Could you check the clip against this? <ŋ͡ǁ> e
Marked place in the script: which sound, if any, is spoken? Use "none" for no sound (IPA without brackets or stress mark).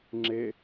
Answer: ŋ͡ǁ